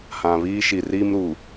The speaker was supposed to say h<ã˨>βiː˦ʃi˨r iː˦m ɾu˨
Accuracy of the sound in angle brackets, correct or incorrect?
correct